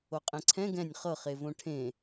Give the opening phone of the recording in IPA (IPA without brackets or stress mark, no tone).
o